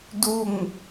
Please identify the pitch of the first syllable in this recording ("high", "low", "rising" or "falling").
falling